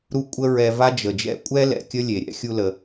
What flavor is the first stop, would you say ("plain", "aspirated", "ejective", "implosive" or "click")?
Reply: ejective